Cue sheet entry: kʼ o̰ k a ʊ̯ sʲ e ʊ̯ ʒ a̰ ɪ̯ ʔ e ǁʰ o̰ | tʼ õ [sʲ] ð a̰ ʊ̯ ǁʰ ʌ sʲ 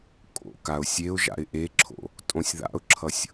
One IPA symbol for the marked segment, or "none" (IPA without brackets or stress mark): sʲ